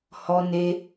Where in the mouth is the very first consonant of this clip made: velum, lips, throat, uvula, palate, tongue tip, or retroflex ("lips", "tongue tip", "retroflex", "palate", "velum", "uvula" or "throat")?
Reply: throat